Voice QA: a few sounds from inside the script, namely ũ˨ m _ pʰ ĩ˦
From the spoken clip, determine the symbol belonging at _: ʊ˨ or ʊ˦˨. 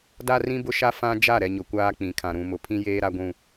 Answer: ʊ˨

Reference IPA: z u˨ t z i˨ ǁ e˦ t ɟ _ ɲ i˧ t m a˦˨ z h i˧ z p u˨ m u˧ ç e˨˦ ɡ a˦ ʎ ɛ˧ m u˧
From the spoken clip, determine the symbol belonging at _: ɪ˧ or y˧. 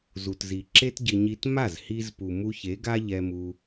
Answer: ɪ˧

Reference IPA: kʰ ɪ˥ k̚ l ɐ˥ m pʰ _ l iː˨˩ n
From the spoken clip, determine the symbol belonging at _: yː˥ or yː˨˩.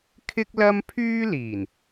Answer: yː˥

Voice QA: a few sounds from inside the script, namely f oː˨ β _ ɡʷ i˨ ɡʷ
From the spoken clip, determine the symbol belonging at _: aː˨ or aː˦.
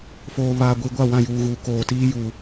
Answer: aː˨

